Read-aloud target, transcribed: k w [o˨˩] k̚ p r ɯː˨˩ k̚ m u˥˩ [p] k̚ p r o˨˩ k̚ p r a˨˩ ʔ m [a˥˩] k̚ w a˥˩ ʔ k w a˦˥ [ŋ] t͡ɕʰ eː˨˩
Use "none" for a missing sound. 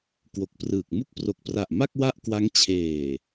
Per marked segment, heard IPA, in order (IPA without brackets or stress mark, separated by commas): o˨˩, none, a˥˩, ŋ